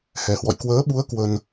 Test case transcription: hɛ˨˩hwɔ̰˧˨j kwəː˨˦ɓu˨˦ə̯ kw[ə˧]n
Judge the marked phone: correct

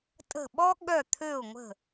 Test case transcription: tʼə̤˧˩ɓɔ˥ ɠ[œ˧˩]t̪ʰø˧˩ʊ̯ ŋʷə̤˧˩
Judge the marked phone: correct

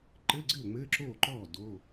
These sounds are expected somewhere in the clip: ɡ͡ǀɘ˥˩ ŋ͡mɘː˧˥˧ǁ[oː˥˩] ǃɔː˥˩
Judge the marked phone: correct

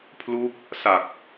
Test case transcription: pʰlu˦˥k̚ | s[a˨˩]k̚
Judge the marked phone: correct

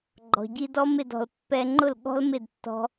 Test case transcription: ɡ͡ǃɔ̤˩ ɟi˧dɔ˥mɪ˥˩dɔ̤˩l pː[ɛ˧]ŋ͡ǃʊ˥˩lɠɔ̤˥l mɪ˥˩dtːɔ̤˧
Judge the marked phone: correct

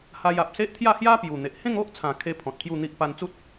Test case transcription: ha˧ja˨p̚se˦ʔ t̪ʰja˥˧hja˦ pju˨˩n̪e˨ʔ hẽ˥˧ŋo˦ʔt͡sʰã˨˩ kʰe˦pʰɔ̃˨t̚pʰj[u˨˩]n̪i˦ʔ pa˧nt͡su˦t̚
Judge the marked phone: incorrect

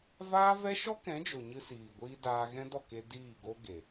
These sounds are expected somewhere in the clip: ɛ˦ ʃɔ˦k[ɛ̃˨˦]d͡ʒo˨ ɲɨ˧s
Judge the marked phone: correct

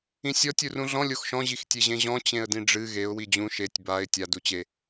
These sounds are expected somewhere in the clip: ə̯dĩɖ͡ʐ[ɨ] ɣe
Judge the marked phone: correct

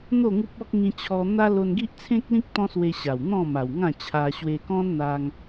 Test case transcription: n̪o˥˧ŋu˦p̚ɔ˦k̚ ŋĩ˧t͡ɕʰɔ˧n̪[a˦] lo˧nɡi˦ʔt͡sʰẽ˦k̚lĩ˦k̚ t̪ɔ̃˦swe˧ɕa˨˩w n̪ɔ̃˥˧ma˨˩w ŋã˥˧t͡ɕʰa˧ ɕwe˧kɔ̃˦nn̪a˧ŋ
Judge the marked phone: correct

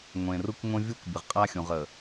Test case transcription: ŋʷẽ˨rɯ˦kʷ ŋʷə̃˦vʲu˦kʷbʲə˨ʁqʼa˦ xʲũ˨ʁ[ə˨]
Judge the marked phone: correct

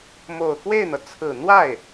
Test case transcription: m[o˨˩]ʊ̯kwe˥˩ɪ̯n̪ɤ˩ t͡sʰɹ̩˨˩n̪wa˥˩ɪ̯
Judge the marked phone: correct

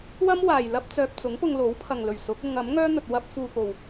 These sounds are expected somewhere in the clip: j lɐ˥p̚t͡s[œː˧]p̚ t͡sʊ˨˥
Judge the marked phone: correct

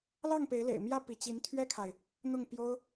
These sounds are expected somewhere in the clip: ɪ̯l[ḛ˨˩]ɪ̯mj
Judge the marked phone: correct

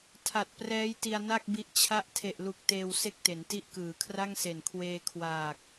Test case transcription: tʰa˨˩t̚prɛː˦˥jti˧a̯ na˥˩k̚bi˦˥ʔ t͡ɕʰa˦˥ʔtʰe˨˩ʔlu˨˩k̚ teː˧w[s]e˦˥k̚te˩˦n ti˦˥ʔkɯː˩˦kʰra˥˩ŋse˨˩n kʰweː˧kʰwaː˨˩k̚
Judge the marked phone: correct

